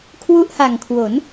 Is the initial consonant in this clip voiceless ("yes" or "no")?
yes